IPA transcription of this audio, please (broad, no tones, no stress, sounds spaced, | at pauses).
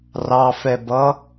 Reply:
r ɑ f ɛ b ʌ